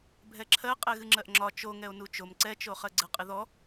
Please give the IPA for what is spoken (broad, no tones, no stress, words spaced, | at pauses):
bʱɛǁʰɜ qʼɛɣɨŋ͡ǁɜʔŋ͡ǁɒ t͡ʃo ŋɛo̯nut͡ʃom ǀɛt͡ʃo χɜɡ͡ǀəqʼɨ ðɔ